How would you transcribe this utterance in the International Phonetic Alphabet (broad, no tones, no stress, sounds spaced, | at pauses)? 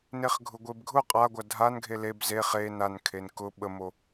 n e χ ɡʱ ʊ ɡʷ e b ɡʱ ʊ qʼ a ɡʷ a dʱ a n ɡʱ e l e b z e χ e n a n kʰ e n k ʊ ɓ ə m o